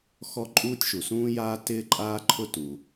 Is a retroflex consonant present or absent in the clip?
absent